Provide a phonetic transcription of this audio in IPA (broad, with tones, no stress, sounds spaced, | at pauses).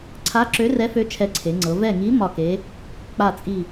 ǀʰ a˧˥ ǁ ø˧˥ r ɛ˧˥ f ø˧˥ t͡ʃʰ ɛ˧˥ ǀʰ e˩˧ ŋ͡ǀ ɤ˩˧ v ɛ˦˨ ŋ i˧˥ m ɒ˦˨ k e˧˥ | k͡p a˦˨ t͡sʼ i˦˨